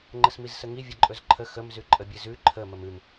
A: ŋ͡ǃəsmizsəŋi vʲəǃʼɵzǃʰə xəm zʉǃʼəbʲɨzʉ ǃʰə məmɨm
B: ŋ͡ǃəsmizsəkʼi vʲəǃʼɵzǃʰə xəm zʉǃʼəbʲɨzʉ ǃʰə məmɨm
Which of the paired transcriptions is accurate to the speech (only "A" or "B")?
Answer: A